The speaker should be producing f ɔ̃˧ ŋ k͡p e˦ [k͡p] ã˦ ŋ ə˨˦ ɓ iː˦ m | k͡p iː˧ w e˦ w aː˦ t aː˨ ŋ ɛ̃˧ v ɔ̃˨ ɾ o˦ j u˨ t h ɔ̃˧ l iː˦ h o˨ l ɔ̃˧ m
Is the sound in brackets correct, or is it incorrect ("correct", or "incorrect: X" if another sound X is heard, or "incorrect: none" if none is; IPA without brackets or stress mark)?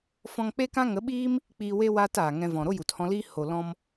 incorrect: k